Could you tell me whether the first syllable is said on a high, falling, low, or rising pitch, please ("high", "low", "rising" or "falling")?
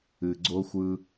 low